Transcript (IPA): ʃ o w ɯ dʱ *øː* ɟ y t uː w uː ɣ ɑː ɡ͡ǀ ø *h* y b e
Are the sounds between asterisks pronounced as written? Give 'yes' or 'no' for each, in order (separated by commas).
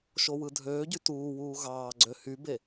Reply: yes, yes